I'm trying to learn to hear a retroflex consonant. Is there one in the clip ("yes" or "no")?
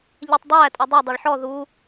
yes